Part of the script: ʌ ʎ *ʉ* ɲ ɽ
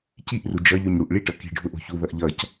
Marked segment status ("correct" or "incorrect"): correct